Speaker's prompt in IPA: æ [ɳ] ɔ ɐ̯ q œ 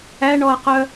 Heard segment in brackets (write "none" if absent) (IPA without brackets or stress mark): ɳ